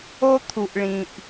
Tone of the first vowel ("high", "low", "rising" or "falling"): high